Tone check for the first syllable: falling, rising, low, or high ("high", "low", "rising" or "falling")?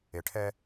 low